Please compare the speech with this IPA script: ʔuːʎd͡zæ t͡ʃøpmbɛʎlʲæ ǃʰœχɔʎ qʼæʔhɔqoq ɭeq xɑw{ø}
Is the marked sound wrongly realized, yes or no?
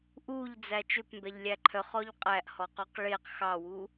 yes